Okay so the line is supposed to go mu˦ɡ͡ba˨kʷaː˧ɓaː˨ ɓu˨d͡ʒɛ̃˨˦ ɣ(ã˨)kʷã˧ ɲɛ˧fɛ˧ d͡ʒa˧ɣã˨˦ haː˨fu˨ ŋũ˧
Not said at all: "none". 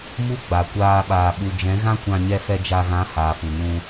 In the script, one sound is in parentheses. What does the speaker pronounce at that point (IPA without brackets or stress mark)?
ã˦